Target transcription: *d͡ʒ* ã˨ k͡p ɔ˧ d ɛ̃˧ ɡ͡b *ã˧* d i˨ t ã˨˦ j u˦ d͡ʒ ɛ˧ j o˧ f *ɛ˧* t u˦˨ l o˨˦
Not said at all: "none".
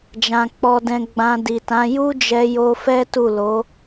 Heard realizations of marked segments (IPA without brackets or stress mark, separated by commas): d͡ʒ, ã˧, ɛ˦